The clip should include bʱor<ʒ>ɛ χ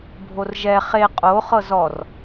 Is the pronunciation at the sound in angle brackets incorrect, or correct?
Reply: correct